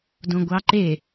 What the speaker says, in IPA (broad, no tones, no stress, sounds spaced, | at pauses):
d õ ɡʷ ɑ ǃ e